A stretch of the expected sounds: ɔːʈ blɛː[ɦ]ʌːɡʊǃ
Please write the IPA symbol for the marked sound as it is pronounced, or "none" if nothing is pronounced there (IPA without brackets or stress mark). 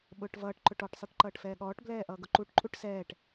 ʔ